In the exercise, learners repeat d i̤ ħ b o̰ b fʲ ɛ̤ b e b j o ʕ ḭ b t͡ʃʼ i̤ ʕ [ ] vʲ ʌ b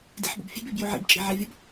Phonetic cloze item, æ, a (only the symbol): a